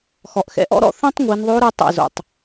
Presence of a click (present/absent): absent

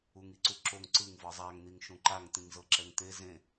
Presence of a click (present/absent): present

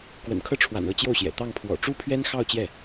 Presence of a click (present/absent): absent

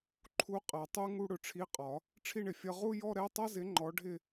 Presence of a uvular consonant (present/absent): present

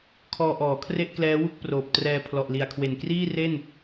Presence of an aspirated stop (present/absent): present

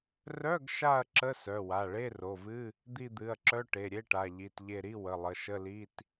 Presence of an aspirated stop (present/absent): absent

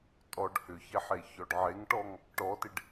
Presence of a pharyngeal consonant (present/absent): present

